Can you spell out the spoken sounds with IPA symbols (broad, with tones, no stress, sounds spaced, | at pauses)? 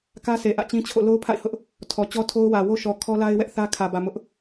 k ä˦ s e˨ ʔ ä̰˦˨ t͡ɕ ĩ˦ t͡ɕʰ o̰˦˨ l o˦ ʊ̯ pʰ a̰˦˨ ɪ̯ h ʊ˦ ʔ | tʰ ɔ˨ t͡ɕ ɔ˦ tʰ o˦ ʊ̯ w ä˨ w o˦ ʃ ɔ˨ kʰ ɔ˦ l a˦ ɪ̯ w ɛ˦ ʔ θ ä˦ kʰ ä˨ b ä˨ m ʊ˦ ʔ